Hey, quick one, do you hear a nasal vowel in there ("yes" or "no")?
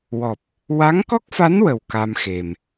no